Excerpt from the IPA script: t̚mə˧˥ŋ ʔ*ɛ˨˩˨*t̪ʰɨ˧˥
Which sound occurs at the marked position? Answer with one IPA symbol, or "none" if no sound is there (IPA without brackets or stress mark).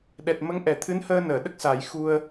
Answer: ɛ˨˩˨